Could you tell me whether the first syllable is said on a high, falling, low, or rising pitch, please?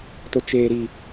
low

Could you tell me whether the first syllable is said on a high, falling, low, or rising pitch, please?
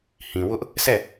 low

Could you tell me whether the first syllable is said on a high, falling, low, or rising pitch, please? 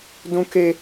high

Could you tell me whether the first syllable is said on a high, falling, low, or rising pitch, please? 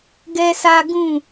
high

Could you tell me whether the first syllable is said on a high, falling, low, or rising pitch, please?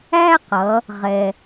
high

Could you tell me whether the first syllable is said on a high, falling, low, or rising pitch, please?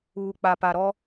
low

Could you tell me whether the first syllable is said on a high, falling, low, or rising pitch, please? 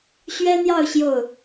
high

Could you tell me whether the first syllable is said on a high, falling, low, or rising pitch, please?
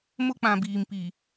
high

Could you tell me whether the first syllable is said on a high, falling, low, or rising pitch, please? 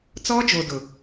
high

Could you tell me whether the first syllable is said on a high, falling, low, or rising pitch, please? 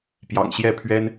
low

